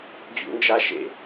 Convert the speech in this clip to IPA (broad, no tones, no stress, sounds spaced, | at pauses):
d͡ʑ ṵ n d͡ʒ a ʃ ḛ